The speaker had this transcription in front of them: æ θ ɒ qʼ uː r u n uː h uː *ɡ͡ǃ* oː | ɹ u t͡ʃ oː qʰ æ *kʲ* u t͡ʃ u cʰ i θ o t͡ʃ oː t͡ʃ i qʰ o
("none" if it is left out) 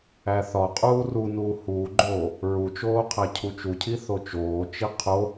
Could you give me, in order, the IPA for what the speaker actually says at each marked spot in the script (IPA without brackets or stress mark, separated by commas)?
ɡ͡ǃ, cʰ